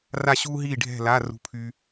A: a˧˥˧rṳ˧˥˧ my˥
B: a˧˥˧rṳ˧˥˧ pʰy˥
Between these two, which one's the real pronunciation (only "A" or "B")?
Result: B